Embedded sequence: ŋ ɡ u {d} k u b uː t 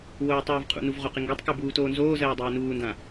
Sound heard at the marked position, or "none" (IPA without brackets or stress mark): tˤ